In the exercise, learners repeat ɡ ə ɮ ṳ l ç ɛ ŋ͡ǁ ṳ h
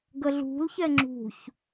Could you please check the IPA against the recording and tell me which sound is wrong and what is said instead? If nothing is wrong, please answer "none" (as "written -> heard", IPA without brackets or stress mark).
h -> ç